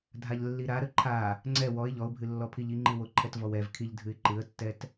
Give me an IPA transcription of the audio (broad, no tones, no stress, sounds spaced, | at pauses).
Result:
dʱ a ʎ lː i ɾ a ɾ ə ǃʰ a | ŋ͡ǀ ɛ w ɔ ɪ̯ ʎ ɔ ʊ̯ bʱ ɨ lː ɔ pʰ i ʎ i ŋ͡ǃ ɨ w o ǃʰ ɛ t v ɔ w ɛ v kʰ i ʎ dʱ ɨ ɪ̯ ǃ ɨ ə̯ tː ɛ t